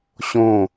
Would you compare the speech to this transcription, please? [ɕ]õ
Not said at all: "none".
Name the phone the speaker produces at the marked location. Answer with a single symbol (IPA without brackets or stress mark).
ɕ